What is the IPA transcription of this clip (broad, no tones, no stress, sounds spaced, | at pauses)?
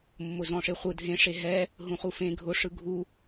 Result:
mː ʊ z ɔ̃ ʂ e χʷ ɯ dʱ ẽ ʂ e ɦ ɛ | ɦ ũ χ u f ẽ ɡʱ ʊ ʂ ɯ ɡʱ u